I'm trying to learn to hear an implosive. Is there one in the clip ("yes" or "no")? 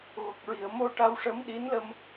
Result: yes